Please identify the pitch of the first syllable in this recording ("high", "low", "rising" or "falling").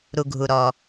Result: low